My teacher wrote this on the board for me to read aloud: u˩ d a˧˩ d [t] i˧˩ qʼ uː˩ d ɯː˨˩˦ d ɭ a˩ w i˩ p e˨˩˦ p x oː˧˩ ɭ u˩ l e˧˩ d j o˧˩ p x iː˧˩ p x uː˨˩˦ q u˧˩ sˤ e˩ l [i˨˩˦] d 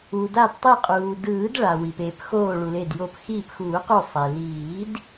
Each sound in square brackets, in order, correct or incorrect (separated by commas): incorrect, incorrect